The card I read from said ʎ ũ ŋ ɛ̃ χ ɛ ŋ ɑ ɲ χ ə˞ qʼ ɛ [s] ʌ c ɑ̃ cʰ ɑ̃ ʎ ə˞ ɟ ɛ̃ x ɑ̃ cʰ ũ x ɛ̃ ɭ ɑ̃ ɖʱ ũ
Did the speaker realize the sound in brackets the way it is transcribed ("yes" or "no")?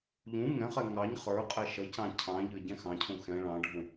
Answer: no